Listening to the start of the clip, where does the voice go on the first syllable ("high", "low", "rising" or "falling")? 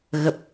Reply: low